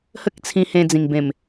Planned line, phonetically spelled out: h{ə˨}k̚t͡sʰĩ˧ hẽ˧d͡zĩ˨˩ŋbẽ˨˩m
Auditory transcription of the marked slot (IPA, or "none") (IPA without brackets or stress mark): ə˦